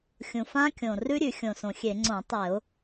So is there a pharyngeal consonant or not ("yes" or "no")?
no